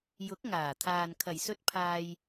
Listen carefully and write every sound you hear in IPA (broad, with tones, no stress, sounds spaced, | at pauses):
j ʊ˨˥ k̚ ŋ aː˨˩ t̪ʰ aː˨ n kʰ ɐ˨˩ j s ɵ˧ t̚ pʰ aː˨ j